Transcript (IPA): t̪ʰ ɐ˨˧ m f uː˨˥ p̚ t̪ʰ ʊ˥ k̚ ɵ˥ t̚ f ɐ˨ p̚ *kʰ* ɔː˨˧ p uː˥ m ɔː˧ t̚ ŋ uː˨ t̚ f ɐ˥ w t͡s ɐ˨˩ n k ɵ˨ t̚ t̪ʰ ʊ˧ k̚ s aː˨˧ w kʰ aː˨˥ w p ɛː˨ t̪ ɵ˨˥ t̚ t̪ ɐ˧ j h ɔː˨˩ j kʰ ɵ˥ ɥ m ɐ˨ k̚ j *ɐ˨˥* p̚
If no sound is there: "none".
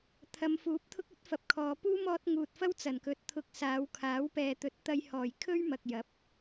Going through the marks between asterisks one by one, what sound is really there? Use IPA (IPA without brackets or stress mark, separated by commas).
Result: kʰ, ɐ˨˥